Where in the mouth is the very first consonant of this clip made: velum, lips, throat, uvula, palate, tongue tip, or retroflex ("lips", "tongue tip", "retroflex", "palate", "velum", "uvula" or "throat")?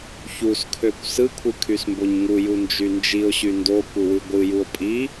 palate